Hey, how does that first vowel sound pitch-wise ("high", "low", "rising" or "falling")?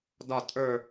falling